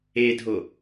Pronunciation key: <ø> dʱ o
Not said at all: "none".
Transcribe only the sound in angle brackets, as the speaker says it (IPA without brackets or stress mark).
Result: e